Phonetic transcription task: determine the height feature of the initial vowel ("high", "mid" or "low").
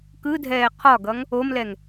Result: high